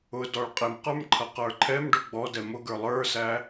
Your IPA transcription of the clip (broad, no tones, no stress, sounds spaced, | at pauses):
ʊ d ɔ ɭ qʼ ɪ m q ə˞ m ǃʰ ʌ q ə˞ ǃʰ ɛ m ɖ ʊ ɡ͡b ɔ d ɛ m ʊ ɡ ə˞ lˠ ə˞ s æ